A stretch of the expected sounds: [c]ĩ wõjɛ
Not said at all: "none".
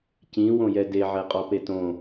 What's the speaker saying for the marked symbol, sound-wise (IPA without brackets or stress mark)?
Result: c